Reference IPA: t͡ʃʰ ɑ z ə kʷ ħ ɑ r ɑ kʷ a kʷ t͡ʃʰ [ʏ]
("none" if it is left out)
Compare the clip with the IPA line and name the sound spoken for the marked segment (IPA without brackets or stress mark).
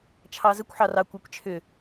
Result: ʏ